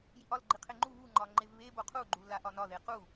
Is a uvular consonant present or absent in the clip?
present